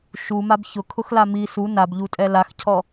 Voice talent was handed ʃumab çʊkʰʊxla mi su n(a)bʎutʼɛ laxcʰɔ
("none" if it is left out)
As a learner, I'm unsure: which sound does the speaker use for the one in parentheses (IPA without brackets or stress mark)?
a